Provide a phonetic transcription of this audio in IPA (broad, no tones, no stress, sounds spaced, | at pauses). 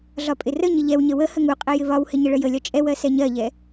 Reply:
ɮ ɒ pʼ ɪ r ə ɲ ɪ ʎ ɛ w ɲ ə w ə h ə ŋ u qʼ ɛ j ɪ β ɒ w h ɪ ɲ ə ɭ ə j ə lʲ ɒ t͡ʃʼ ɛ w ɜ s ɛ ɲ ɜ ʎ ɛ